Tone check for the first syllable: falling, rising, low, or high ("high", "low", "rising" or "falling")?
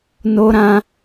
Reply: high